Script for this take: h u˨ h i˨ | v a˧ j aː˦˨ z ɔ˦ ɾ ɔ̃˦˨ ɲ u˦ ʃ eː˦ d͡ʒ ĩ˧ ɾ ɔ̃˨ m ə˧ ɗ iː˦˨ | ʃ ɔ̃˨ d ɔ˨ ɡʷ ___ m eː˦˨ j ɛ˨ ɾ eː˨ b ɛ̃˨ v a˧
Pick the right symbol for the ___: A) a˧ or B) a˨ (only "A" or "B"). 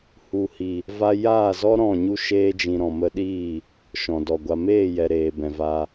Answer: B